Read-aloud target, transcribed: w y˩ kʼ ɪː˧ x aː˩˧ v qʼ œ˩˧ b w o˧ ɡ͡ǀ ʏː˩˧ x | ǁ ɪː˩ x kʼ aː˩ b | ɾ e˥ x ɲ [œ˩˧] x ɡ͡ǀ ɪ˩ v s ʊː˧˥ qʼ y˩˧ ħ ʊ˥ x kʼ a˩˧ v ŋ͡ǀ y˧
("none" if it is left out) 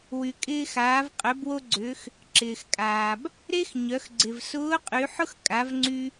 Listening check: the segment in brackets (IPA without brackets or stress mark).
œ˩˧